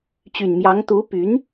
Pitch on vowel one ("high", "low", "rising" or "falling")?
low